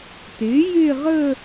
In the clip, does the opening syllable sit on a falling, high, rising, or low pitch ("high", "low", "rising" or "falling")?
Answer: rising